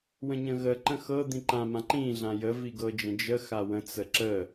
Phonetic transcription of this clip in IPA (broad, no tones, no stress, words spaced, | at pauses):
wə̃ɲə̃ɣəǃə̃ xɤd̪ĩ ǃãmã ǃĩɮã jəvi ɡɤd͡ʒə̃d͡ʒəxa wə̃t͡sə ǁə